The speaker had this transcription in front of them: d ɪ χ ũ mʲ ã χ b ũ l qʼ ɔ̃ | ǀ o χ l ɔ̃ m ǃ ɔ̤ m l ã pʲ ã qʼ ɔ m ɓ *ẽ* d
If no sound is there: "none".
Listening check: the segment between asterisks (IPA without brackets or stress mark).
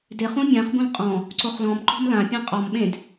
ẽ